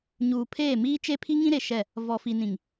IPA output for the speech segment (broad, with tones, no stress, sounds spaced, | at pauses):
ɲ uː˨ pʰ eː˦˨ m iː˦ t͡ʃ e˦ pʰ i˦ ŋ ĩ˦ ɾ e˨ ʃ ɛ˦˨ | v ɔ˨ f i˨ n ĩ˨ ŋ